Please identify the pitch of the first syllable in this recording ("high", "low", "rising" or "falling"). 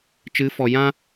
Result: rising